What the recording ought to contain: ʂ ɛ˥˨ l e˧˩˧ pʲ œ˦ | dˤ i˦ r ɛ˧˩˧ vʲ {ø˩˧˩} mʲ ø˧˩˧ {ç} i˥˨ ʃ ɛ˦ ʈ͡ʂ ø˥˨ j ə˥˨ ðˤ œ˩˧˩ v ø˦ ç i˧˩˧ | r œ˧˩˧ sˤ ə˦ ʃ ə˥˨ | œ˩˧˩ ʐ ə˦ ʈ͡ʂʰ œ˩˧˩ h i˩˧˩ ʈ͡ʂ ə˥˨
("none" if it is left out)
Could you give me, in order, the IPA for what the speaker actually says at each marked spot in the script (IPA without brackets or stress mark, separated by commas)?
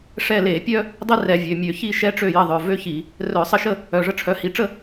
ø˩˧˩, ç